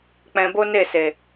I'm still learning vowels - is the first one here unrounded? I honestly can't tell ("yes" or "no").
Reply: yes